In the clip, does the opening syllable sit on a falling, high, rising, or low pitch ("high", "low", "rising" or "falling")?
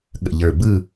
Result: low